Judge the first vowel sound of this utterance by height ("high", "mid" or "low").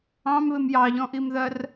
low